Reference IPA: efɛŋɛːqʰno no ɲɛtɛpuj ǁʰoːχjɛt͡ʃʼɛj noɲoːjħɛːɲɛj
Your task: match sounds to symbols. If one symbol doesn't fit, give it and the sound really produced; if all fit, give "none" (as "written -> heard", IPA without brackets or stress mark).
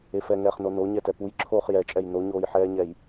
qʰ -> χ